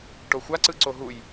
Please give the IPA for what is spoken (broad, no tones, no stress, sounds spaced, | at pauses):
ʈ o xʷ a ǀ ɯ ǀ o ɦ u j